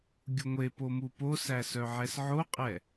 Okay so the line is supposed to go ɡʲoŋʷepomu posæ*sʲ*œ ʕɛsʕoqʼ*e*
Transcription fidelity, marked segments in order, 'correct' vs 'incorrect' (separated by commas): incorrect, incorrect